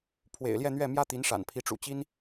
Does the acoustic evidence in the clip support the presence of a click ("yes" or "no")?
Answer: no